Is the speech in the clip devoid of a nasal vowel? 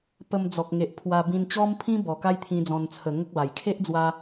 no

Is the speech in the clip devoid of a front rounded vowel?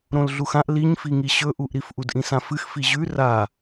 yes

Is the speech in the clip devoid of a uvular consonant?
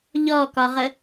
no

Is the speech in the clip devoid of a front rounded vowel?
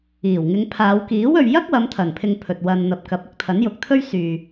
no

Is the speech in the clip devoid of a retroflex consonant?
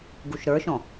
yes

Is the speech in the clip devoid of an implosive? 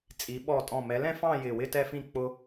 no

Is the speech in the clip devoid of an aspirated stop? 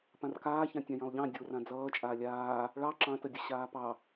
yes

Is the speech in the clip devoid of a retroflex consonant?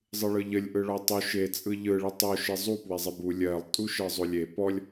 no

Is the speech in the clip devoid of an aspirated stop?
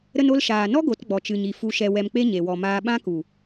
yes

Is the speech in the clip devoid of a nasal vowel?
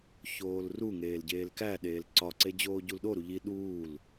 yes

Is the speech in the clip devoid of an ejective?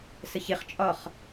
no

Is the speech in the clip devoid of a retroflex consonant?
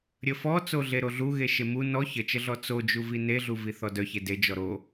yes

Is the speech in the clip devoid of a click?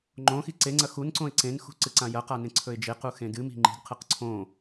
no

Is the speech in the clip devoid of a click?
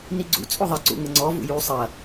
no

